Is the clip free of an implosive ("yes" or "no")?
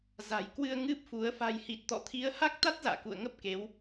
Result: yes